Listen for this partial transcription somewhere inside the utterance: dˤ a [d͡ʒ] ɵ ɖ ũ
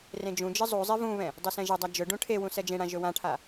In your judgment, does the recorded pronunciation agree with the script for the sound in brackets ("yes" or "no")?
yes